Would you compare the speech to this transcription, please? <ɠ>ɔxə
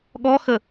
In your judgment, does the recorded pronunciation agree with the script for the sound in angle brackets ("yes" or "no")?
yes